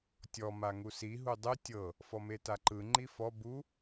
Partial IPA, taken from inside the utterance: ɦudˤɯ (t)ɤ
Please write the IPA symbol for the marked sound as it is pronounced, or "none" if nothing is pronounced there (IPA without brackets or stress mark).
tʲ